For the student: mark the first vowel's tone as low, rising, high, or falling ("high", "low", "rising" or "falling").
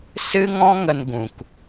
high